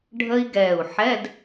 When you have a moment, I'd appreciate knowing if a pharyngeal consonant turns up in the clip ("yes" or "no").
yes